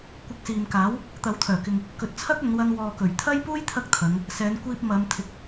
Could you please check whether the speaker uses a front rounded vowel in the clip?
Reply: yes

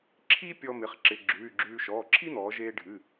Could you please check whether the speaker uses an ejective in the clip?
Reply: no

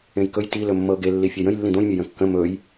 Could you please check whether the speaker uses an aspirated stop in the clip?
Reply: no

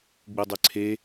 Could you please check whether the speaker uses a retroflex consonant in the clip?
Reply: no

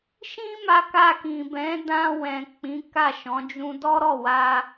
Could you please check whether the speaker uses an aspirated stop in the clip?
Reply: no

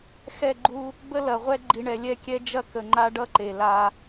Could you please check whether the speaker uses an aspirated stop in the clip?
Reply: no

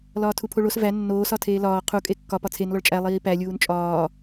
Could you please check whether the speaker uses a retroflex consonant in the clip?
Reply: yes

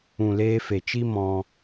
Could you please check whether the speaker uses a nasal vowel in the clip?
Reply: yes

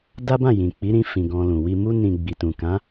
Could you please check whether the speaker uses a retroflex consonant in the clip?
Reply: no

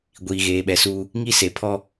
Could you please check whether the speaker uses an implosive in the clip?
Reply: yes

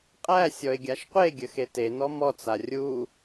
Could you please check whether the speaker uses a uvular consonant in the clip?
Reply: yes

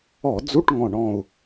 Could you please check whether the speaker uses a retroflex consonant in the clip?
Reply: yes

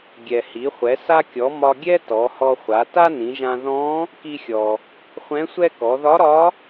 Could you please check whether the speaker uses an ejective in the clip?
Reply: no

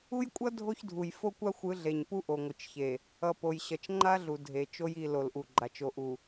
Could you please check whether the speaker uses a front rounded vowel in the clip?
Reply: no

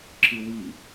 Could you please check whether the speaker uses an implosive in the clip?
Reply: no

